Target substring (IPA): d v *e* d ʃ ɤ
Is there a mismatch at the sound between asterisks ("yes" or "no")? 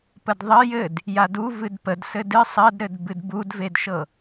no